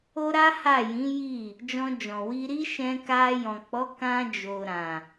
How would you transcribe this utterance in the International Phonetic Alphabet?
o˦ ɾ a˦ h a˦˨ j ĩ˨˦ j i˦˨ | d͡ʒ ɔ̃˧ d͡ʒ ɔ̃˨ w i˧ ɾ i˦ ʃ ɛ̃˧ k a˧ j ɔ̃˨ k͡p ɔ˨˦ k ã˧ d͡ʒ o˨ ɾ ã˨

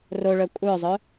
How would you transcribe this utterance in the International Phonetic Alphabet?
r o ɭ œ kʷʼ œ zˤ œ

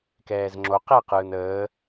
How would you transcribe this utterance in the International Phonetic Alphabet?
k ɛː z ŋ͡ǁ o q ɛ q ɯː n əː

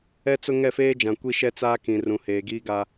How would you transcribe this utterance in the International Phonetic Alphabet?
ɛ˦ t͡s ʊ˦ ŋ ɛ˦˨ f eː˦ d͡ʒ ã˨ kʷ i˦ ʃ ɛ˦ t͡s aː˦ k ĩ˨ r ũ˨ h eː˨ ɡ iː˦ ɡ a˦

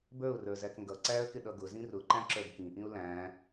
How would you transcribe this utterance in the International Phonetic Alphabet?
b ə˞ ʊ̯ r ə˞ z æ k ŋ ɡ ʌ ǀ æ ə̯ k ɪ ɗ ʌ ɡ ʊ z ĩ r ʊ ǃ æ̃ ǁ ə˞ ɡ k ĩ ʔ ĩ ʊ̯ l æ̃

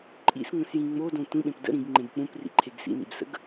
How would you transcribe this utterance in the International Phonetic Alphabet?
ǃʼ ḭ s ŋ ə̃ s j ĩ ŋ͡m o d õ tʷ ĩ ɓ ẽ p d ə̰ ɾ ĩ ɡ ŋ͡ǃ ẽ b k͡p ũ p r ḭ ǃʰ e ɡ s ḭ n ḭ b s ə̰ ɡ

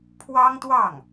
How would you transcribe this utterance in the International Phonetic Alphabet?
pʰ w ɑ˥ ŋ t̪ w ɑ˥˩ ŋ

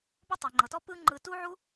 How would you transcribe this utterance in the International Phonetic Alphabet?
b o˦ tˤ e˨ ŋ͡ǃ ɤ˨ t ɔ˦ p ɯ˦ ŋ͡ǃ ɯ˧ t u˦ ʕ u˦

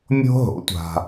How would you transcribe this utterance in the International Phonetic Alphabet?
mʲ o̤˧ ɦ o̰˩˥ tʷ a̤˩

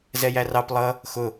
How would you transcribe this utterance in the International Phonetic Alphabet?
z ɛ j æ r ɑ p lˠ ʌ | x ʊ

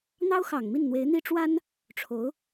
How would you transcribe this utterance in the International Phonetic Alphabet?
n̪ ɑ˥ ʊ̯ x ɑ˨˩ ŋ m i˥˩ n n̪ w e˧˥ ɪ̯ n̪ i˥ ʈ͡ʂ w a˥ n | ʈ͡ʂʰ o˧˥ ʊ̯

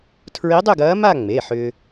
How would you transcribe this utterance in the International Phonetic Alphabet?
tʰ ɹ i˧˥ dˤ ʏ˥˧ ɡ ɐː˧˥ m a˥˧ ŋ͡m e˩˧˩ ħ ʏː˧

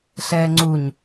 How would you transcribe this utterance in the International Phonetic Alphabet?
ɬ ɛː ŋ͡ǀ u ɲ

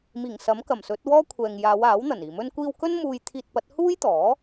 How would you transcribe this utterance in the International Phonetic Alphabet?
m iː˨˩ ŋ s ɐ˨˥ m k ɐ˨˩ m s ɵ˨˥ t̚ w ɔː˥ kʷʰ ɛː˨ ŋ j aː˨˧ w aː˨˥ w n̪ ɐ˨˩ n iː˨˩ m ɵ˧ n kʷ iː˧ w k ɵ˥ n m uː˧ j t̪ʰ iː˧ t̚ p ɐ˨˥ t̚ h uː˥ j t̪ ɔː˨˥

